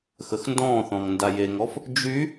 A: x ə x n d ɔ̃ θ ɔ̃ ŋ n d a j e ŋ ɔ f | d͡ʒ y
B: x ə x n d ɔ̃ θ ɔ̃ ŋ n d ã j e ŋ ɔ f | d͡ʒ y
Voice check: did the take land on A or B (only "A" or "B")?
A